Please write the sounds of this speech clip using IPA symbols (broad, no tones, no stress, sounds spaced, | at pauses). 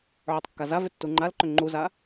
ʕ ʏ tˤ kː a z a v ʏ tː u ŋ͡ǃ a l ǃ ʏ ŋ͡ǃ u z a